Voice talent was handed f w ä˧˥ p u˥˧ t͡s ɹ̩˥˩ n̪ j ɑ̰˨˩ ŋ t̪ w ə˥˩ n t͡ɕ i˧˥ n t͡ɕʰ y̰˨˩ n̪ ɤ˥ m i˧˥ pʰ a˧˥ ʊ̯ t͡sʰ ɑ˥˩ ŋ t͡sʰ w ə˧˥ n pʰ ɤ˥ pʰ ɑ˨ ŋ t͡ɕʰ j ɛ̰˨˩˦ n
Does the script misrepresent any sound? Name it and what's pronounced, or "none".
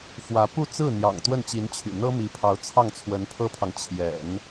a˧˥ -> ɑ˧˥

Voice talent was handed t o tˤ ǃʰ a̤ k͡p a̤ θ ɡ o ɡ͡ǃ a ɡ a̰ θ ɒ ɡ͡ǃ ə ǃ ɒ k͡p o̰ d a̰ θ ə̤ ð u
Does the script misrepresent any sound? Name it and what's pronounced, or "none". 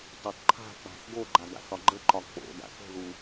none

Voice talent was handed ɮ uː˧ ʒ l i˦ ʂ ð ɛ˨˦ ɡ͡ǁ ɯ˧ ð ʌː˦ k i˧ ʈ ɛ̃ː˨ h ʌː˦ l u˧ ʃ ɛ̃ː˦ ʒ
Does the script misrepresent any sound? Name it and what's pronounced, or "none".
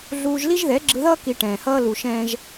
ʂ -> ʒ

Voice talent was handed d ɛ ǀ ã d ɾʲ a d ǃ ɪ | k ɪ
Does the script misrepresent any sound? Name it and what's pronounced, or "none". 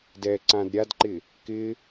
none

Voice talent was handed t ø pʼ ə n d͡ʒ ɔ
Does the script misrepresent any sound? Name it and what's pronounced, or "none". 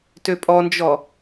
ə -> ɔ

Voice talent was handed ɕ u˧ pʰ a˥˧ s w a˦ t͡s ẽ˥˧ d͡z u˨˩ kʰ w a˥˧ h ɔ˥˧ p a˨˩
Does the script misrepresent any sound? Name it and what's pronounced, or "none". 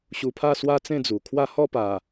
none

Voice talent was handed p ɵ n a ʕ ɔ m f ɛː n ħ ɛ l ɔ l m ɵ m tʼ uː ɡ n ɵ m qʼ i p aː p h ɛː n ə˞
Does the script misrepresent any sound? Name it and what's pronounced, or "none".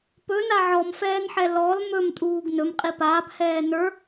none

